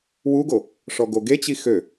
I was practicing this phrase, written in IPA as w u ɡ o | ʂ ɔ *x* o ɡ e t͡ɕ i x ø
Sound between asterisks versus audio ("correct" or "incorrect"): incorrect